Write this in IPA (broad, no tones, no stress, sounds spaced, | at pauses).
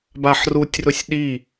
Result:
b a ħ r u tʲ r ʊ sʲ ɗ i